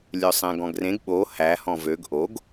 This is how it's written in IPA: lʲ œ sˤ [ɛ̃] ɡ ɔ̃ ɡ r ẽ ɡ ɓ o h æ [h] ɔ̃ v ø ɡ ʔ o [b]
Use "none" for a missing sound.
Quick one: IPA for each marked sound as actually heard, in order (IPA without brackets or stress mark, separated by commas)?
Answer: ɛ̃, h, ɡ